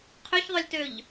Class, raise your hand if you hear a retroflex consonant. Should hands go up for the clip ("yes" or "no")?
no